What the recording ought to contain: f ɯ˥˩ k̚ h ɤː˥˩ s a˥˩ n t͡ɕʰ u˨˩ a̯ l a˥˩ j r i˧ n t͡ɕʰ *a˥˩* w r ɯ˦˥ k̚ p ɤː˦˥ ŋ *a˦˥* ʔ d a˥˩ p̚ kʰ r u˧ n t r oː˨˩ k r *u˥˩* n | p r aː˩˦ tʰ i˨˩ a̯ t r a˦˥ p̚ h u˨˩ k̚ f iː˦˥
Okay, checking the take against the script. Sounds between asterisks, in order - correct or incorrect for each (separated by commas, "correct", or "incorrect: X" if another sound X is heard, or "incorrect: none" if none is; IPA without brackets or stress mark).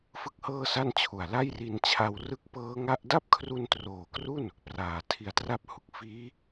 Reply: incorrect: a˧, correct, correct